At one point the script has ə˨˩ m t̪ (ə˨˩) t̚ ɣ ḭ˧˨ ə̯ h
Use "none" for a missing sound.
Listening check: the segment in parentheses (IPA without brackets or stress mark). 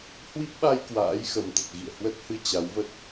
ə˨˩